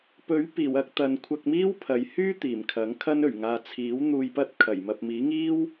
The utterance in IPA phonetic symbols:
pɵ˨˥ɥpiː˨˩w ɐ˧k̚t̪ɐ˨n kʷʰɐ˧k̚miː˥wpʰɐ˨j hyː˥ t̪iː˨˩mkʰɐ˨˥ŋkʰɐ˥n ɵ˨˩ɥŋaː˨t͡sʰiː˨˥w n̪uː˧jpɐ˥t̚ kʰɐ˨˩j mɐ˨p̚miː˨˥ŋiː˥w

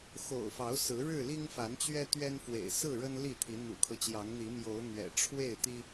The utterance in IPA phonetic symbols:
xo̰˨˩ʊ̯fɑ˨˦ʊ̯ sɹ̩˨˦ ɻɻ̩˥˨ li˦ŋfa˨˦n t͡ɕɥɛ˦t̪ɥɛ˦n fwḛ˨˩ɪ̯ sɹ̩˥˨ɻə˦n li˥˨t̪ʰi˨˦ n̪ṵ˨˩kʰɤ˦t͡ɕjɑ˨˦ŋ n̪i˨˦mjo˨˦ʊ̯n̪ɥɛ̰˨˩ ʈ͡ʂʰwe˥˨ɪ̯t̪i˦

